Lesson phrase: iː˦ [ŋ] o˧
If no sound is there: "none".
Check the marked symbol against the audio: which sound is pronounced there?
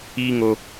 ŋ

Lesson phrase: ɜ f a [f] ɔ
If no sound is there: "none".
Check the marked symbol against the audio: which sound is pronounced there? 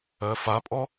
pʼ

